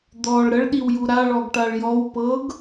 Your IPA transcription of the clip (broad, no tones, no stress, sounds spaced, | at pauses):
d̪ ɔ ɭ ɾ ə ɭ ɗ i w j u ɾ a ɭ ɔ ɡ ʈ a ɭ j ɔ w p ɤ ɡ